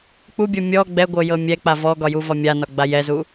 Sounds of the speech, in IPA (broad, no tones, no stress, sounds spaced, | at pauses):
k͡p u bʲ o mʲ ɔ ɡ͡b ɛ ɡʷ ɤ j ɤ mʲ ɛ k͡p a v ɔ ɡ ɒ j u v ɒ mʲ a n ɒ ɡ͡b a j ɛ z u